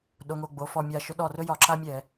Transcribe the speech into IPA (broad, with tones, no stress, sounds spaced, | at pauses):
ɗ o˩˧˩ ŋ o˧˩ ɡ͡b o˩˧˩ f ɔ˧˩ mʲ a˧˩ ʃ ɵ˨˥ ɗ ɔ˧˩ r ɵ˦ j ɒ˧˩˧ ǁ a˦ mʲ ɛ˧˩˧